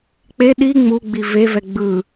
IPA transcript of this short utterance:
k͡p e ɗ i ŋ͡m u ɡ͡b i v e v ɛ ɡ͡b ɯ

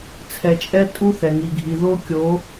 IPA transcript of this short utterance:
t͡sʰ ɛ˨ t͡ʃʼ ɛ˦ tʼ u˦ θ ɛ˨ ŋ i˨ ɡʱ i˨ ð o˦ kʲ o˨˦

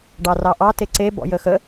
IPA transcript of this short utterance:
ɖ ɑ r ɑ ʔ ɑ t e ǀ e b ɔ̰ j ə x ə

